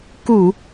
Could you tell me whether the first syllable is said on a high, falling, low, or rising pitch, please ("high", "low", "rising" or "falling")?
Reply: low